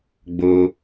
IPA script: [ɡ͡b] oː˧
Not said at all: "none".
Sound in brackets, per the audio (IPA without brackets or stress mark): ɡ͡b